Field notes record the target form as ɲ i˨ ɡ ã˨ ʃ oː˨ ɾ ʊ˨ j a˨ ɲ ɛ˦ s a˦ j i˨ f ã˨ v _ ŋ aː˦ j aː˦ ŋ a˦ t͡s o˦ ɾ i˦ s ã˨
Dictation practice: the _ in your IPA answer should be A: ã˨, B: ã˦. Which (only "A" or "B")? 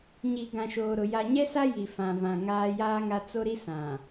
A